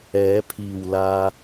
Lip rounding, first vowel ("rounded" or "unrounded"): unrounded